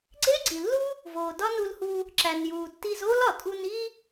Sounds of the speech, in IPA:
ɡ͡ǀe˥ɡ͡ǀi˩lːu˥ | voː˩dɒ˥nu˧lhu˧ | ǁæ˩njuː˩ tːi˧z oː˥lɒ˩ tʼu˧ni˥

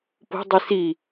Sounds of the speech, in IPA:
po̤dˤi si

